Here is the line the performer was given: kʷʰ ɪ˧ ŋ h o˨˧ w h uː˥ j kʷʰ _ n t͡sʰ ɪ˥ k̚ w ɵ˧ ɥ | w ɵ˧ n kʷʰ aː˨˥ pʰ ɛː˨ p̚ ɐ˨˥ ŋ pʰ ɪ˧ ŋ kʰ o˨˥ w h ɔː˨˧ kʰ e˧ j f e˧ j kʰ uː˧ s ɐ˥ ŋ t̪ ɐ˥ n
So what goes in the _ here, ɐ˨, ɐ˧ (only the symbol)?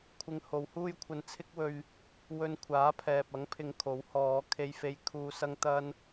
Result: ɐ˧